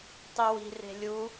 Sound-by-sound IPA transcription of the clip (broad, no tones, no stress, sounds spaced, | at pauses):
tˤ i w i̤ r e̤ lʲ u